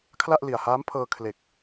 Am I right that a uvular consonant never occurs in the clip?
yes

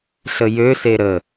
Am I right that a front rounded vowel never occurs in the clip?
no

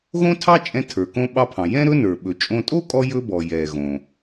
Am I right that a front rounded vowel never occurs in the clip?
yes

